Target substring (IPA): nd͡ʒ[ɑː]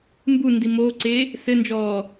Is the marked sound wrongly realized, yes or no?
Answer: yes